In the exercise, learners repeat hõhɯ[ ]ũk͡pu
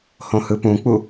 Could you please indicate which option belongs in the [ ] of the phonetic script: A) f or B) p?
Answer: B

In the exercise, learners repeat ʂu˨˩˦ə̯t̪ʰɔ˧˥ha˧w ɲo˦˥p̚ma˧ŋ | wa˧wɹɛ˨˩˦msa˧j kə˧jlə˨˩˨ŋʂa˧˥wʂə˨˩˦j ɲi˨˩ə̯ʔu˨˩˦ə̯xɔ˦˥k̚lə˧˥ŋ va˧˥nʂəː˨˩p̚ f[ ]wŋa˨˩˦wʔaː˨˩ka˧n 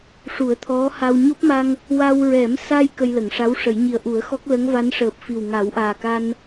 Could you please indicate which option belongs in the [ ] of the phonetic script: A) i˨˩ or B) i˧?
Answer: A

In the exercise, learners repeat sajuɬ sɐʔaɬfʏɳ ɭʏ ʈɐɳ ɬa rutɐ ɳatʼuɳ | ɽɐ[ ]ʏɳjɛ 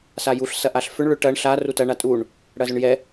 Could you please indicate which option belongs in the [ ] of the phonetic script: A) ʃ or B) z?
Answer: B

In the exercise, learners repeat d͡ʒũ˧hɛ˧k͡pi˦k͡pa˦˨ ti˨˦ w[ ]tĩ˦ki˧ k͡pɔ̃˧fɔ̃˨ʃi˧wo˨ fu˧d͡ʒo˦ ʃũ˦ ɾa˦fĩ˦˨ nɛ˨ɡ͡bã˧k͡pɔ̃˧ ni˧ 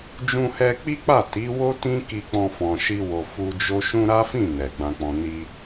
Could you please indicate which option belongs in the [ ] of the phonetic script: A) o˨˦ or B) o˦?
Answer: B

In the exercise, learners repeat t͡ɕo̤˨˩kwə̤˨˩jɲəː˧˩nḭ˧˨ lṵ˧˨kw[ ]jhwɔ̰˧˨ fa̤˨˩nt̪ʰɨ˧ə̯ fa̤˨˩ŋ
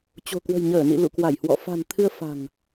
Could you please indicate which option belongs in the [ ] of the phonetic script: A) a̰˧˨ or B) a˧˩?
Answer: B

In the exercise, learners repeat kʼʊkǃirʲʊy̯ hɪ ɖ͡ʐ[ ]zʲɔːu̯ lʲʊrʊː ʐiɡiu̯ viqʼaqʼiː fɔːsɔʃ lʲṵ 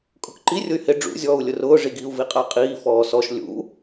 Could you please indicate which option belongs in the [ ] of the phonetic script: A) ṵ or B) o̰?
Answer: A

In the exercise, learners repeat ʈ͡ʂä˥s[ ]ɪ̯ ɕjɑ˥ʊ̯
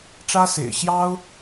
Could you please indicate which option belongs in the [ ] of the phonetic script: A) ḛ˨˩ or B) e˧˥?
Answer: A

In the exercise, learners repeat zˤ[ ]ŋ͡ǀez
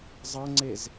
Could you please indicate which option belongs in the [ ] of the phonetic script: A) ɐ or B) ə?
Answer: A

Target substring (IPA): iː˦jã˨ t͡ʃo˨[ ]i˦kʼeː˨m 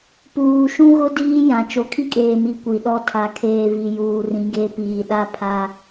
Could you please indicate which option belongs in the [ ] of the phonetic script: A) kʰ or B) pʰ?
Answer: A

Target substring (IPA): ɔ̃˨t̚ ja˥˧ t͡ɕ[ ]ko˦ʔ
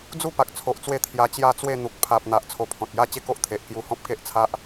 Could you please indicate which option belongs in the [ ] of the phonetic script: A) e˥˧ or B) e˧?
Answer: A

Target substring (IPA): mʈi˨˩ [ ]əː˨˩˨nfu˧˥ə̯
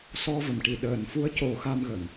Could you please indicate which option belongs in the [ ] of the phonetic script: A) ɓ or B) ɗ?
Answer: B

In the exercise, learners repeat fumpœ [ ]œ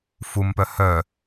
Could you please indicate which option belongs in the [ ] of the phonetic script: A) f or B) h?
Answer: B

